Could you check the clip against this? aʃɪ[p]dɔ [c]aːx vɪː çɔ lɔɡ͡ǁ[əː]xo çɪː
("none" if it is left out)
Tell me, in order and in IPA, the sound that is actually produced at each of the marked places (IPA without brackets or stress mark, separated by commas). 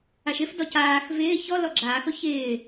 f, c, aː